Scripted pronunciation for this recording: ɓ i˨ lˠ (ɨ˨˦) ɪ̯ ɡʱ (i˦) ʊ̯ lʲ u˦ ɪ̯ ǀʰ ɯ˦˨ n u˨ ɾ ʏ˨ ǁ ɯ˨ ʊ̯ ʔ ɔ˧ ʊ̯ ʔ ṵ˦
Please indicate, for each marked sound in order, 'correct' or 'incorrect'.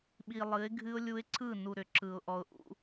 correct, incorrect: ɨ˦

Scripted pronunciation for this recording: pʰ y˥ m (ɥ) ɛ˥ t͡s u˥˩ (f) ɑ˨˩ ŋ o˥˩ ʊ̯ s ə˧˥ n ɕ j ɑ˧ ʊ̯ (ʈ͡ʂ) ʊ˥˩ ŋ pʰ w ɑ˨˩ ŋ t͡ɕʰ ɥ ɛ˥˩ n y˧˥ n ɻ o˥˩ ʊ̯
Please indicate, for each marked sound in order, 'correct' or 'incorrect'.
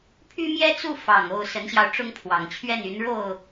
incorrect: j, correct, correct

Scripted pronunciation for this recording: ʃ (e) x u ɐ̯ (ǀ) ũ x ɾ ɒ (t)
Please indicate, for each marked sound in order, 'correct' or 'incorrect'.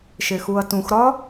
correct, incorrect: t, incorrect: none

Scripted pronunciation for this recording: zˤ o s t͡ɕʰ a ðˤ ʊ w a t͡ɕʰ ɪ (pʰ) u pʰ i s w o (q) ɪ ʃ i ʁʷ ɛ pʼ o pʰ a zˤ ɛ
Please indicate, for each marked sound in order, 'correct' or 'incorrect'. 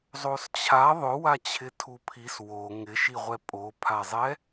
incorrect: tʰ, incorrect: ŋ

